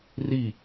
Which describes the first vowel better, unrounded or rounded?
unrounded